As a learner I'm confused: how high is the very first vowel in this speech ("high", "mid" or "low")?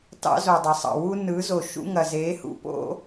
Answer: low